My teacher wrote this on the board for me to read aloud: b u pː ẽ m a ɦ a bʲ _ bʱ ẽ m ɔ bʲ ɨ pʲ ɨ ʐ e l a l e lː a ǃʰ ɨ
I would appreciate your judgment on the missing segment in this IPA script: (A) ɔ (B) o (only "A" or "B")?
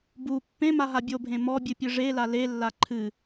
B